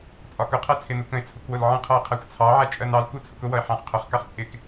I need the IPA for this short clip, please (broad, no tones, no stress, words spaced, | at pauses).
t͡sʼɒkʊqʰɛ t͡sʰɪnukə̃ɪ̯t͡sʰuk wʊlʕə̃qʰʌɪ̯ qʰæxʷt͡sʰɑʕæ t͡ʃʼɜnɑlku t͡sʰʊkʊwʌɪ̯ ħɑ̃χqʰʊχkɑχ t͡sʼɪk